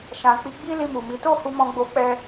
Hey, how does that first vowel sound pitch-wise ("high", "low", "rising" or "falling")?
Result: low